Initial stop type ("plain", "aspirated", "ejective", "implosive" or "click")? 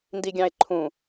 plain